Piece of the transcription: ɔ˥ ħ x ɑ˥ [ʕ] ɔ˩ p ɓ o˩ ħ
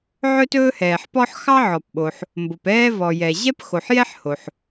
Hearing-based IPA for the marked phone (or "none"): ʕ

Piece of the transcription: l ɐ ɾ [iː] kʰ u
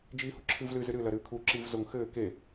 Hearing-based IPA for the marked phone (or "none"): ɨː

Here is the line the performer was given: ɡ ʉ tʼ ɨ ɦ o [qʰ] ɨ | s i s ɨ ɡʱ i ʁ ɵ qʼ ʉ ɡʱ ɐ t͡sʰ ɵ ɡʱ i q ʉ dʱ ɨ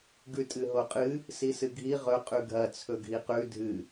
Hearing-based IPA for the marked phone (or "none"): qʼ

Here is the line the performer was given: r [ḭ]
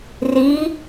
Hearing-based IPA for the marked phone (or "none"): i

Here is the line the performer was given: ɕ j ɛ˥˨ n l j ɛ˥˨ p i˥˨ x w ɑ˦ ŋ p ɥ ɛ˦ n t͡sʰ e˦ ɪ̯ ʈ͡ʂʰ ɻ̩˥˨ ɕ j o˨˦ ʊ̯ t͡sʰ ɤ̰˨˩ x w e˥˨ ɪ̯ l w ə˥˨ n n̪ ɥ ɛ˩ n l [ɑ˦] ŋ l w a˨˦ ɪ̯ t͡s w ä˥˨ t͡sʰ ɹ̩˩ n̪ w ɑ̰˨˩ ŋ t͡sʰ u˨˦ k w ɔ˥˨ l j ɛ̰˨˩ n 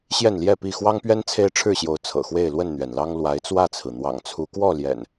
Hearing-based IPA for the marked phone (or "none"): ɑ˦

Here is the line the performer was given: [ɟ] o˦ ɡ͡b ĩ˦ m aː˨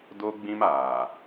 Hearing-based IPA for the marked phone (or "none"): d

